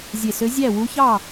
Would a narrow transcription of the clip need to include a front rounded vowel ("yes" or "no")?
yes